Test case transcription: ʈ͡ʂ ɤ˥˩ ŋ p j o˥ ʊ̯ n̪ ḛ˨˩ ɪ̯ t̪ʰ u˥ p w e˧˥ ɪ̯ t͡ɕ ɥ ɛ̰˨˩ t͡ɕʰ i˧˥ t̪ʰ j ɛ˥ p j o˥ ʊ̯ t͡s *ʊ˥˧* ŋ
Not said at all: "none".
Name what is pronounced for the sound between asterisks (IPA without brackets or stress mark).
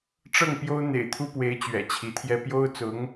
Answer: ʊ˧˥